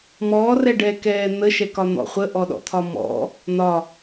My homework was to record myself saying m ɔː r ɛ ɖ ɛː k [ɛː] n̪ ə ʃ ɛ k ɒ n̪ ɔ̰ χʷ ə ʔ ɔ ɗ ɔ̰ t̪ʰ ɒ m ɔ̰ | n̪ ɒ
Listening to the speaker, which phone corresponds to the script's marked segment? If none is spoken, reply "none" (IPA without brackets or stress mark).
ɛː